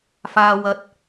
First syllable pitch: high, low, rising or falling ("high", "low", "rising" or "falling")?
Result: low